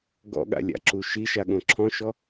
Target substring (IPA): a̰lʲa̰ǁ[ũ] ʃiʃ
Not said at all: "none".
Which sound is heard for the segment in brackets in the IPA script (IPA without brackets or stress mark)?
u